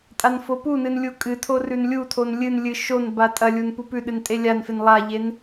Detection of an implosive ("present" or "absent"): present